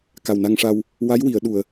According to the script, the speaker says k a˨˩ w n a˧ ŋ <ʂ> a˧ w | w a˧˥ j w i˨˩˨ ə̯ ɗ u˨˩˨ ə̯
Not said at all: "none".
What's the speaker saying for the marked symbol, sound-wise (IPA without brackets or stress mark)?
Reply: ʂ